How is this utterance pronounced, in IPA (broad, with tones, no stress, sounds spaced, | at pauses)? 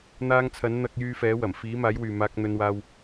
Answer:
n̪ aː˧ ŋ t͡sʰ ɐ˨˥ n n̪ ɐ˧ k̚ j yː˧ f ɛː˨˥ w ɐ˨˩ m f iː˨˥ m aː˨˥ j w yː˨ m aː˧ k̚ n̪ ɵ˧ n w aː˧ w